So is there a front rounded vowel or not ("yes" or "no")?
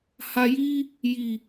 no